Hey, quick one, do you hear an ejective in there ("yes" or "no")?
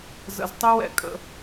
yes